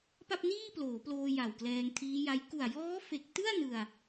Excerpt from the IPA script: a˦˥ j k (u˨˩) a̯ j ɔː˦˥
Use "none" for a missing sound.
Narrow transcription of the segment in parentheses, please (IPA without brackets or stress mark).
u˨˩